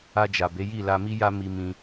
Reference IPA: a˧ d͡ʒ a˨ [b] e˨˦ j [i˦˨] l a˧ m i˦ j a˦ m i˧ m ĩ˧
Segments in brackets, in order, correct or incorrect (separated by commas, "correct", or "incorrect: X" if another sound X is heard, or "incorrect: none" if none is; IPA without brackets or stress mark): correct, correct